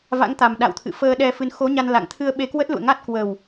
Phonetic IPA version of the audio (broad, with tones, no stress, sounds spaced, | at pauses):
v a̰˧˥ ŋ t̪ a˨˩ m ɗ a̰˧˨ w t̪ʰ ɨ̰˧˨ f əː˧ ɗ ɛ˧ f ɨ˨˦ n x o˨˦ ɲ a˧ n l a̰˧˨ ŋ t̪ʰ ɨ˧ ə̯ ɓ e˧ k w ə˦˥ t̚ l ṵ˧˨ ə̯ ŋ a˦˥ t̚ k w ə˨˩ w